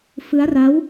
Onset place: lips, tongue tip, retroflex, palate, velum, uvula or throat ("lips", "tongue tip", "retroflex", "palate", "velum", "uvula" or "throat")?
lips